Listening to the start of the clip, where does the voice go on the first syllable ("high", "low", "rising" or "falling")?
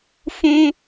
high